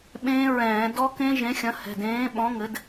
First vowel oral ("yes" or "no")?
no